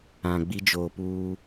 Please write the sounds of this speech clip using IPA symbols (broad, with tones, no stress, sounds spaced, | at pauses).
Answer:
ã˨ ɡ͡b i˦ d͡ʒ oː˨ p uː˦